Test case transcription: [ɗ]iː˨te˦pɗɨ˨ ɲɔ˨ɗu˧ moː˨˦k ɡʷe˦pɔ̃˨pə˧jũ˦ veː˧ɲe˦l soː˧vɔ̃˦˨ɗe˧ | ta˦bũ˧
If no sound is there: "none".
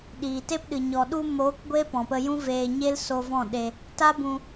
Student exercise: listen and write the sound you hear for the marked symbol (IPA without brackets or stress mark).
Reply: ɗ